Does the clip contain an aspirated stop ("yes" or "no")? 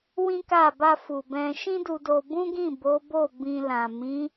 no